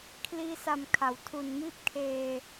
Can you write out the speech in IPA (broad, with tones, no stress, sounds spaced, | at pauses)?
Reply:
kʰ l iː˧ s a˨˩ m kʰ a˩˦ w tʰ u˨˩ n m iː˦˥ p̚ kʰ eː˧